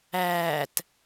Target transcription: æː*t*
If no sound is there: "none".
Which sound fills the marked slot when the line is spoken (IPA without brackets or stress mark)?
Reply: t